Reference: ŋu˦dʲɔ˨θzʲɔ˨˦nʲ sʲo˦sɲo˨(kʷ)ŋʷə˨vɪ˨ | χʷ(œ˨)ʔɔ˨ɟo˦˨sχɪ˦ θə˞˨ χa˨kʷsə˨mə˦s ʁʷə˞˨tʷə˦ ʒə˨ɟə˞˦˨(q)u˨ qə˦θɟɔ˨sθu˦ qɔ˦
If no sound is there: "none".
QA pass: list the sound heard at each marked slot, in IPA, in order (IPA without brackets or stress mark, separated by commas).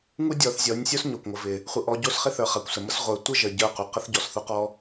kʷ, ə˨, q